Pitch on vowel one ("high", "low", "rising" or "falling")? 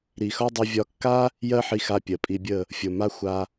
low